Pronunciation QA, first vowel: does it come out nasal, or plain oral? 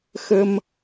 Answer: oral